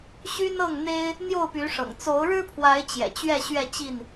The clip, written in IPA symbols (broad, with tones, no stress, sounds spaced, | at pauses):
ɕ y˦ n ɤ˥˨ ŋ n̪ e˦ ɪ̯ | n̪ j o˥˨ ʊ̯ p y˨˦ ʂ ɤ̰˨˩ ŋ t͡s o˨˦ ʊ̯ ɻ ɻ̩˦ pʰ w a˨˦ ɪ̯ t͡ɕ j ɛ̰˨˩ t͡ɕ ɥ ɛ˥˨ ɕ ɥ ɛ˥˨ t͡ɕ i˥˨ n